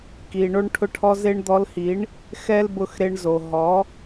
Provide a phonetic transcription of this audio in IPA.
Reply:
ki˨ ɳo˧ɳʈʰʊ˧ʈʰɔ˧ ze˧ɳd̪ɔ˧lhi˨˦ɳ | xɛ˦lbʊ˧x ɾe˧ɳ zo˨ ɦɔ˨˦

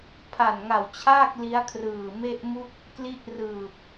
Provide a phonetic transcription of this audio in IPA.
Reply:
pʰa˨˩nŋa˨˩wt͡ɕʰaː˥˩k̚ li˦˥a̯kʰrɯː˨˩ me˥˩ʔmu˥˩k̚ | kli˦˥ʔrɯː˨˩p̚

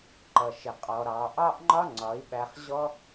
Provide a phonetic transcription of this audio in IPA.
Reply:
ǃʌ˨ʃɪ˨ qʼɔ˨ ɾɑ˨ʔɑ˦ʔŋ͡ǃɒ˦ ŋ͡ǀɒ˨˦i̯ɓæ˧χ ʑɔ˦

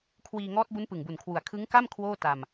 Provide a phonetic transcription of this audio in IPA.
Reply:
kʰwiː˧ŋɔː˦˥t̚ bu˦˥npɯ˨˩ŋbu˨˩nkʰwu˨˩a̯ kʰɯ˦˥ŋ ka˥˩m kʰwoː˥˩ta˧m

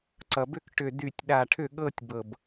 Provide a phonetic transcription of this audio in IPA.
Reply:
ǀʌ˩bʏ˥˧k ʈʏ˧˩ dy˧˩tʲɗa˧˩ʈʰʏ˥˩ɠɤ˥˧tʲ bɤ˧˩b

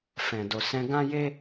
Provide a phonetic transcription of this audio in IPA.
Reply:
fɛ̃˨do˨ sɛ̃˧ɡã˦je˦

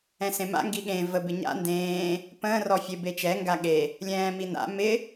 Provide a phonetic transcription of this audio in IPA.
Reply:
ɛ̃sẽma̰ ŋɡiɠẽ və bɪɲa̰ ndẽː | pə̃ːrɔfʲe bet͡ʃɛŋɡa ɠe | lʲɛ̃ːmina̰ mɪ

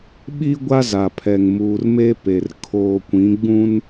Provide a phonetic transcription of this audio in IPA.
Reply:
ɓi˦ ɡʷa˦za˨ pʰɛ˨ŋ muː˨rme˦pe˨r kʰoː˨kʷĩ˨˦ɡ͡bũ˦n

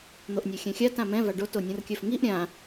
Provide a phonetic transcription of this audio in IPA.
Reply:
n̪oʔnʲə˞xʲɛ̃xʲa tãmɛ̃ vaɖo tonʲõrkʲœfŋiʔ ɾʲã

